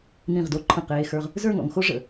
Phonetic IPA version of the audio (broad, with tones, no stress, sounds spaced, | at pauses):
n̪ ĩ˧˩ ʁ d o˧ ǃʰ ə̃˧˩ q eː˧ x ə˞˧ ʁ | z ə˞˥˧ ŋ ɔ̰˩˧ ŋ x o˥ ʐ ə̰˧˩